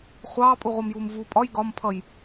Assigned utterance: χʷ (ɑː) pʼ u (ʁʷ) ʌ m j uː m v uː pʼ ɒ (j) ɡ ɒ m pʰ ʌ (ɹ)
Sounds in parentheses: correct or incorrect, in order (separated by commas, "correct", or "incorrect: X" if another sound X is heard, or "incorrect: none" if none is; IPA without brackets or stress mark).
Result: correct, correct, correct, incorrect: j